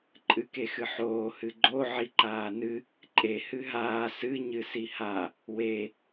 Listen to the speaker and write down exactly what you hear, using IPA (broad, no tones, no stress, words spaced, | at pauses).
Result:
ǃʼɨkexɨħoː hɨɡ͡ǃo ʕiǃaːnɨ | ǃʼe hɨɦaː sɨ ɲɨsiha | we